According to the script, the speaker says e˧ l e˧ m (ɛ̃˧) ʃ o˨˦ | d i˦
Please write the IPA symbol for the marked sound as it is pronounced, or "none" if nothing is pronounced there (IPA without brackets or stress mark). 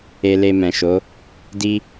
ɛ̃˨